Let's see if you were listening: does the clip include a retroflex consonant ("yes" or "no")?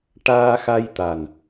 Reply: yes